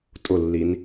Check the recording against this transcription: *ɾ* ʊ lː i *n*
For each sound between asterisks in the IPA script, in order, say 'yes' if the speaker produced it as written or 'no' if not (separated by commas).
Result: no, yes